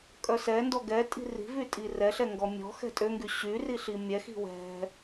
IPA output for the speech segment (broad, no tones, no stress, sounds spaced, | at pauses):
kʼ œ s ɛ n d ɔ ɡ ɛ tʼ i̤ r i̤ v y tʼ i r ɛ ɬ ɛ ŋ ɡ ɔ mʲ ɔ̤ x ɛ̤ tʼ ø ŋ ɡ y ɕ y r i ɬ i mʲ ɛ x i̤ w ɛ̤